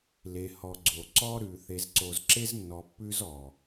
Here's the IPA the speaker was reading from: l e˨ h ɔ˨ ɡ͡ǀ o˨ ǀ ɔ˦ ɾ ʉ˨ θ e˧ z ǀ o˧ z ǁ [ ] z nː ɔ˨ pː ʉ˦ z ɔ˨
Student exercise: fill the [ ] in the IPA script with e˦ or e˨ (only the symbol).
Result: e˦